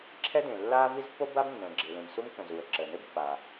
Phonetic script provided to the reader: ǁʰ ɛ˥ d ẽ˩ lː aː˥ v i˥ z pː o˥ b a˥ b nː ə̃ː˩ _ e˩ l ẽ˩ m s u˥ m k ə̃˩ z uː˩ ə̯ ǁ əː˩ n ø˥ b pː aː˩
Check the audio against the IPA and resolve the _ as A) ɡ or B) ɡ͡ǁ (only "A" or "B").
B